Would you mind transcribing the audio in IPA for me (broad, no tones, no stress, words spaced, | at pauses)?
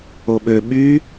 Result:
oɓø ɓy